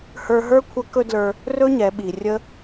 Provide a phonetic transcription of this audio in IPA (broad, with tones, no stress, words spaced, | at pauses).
hə˞˧ɦə˞˥kʷʰə˧˥ kɵ˥dlə˞˧ | rɵ˥ɲɛ˩˧ɓi˩ rʲə˧